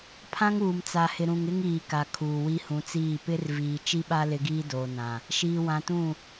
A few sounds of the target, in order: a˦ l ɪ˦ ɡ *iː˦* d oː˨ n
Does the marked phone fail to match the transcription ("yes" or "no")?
no